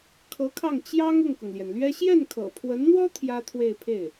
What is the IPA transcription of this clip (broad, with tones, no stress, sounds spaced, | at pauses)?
kʰ ɤ˧˥ kʰ ɑ˥˩ ŋ t͡ɕ j ɑ˥ ŋ ʊ˥˩ ŋ k ʊ˩ ŋ l j ɛ˩ n l ɥ ɛ˥ ɕ j ɛ˥˩ n kʰ ɤ̰˨˩ pʰ w ə˧˥ n n̪ w ɔ˥ t̪ʰ j ä˥ t̪ʰ w e˥˧ ɪ̯ pʰ e˥˩ ɪ̯